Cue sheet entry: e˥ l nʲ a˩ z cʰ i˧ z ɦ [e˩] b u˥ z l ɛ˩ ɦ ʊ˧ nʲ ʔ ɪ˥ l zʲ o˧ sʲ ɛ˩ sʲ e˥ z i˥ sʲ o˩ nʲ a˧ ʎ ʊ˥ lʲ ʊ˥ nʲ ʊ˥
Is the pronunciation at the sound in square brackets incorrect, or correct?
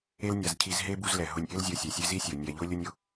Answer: incorrect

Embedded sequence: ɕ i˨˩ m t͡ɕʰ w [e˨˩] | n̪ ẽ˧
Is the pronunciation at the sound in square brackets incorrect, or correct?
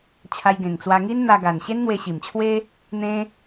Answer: incorrect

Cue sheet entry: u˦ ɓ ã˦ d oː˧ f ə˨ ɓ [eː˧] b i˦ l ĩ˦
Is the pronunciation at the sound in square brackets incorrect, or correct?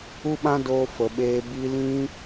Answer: correct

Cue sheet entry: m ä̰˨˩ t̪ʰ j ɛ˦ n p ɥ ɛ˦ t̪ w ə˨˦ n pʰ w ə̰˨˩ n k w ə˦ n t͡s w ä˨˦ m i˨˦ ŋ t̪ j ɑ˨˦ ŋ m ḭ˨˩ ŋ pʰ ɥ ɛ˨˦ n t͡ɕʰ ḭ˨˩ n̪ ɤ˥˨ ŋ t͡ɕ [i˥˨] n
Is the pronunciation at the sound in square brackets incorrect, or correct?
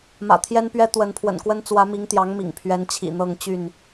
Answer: incorrect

